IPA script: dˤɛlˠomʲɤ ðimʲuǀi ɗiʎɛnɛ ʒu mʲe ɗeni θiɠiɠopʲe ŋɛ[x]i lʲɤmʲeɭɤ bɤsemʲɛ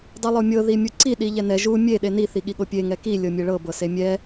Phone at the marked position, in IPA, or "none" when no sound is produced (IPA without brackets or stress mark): k